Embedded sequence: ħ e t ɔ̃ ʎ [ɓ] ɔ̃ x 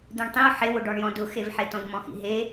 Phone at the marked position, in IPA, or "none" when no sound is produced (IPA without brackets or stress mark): m